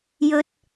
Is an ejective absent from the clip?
yes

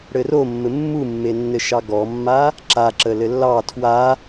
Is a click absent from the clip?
no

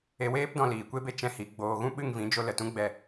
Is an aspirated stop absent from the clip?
yes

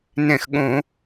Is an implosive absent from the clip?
no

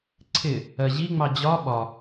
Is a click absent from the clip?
no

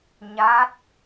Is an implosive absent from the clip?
yes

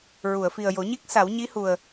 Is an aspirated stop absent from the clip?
yes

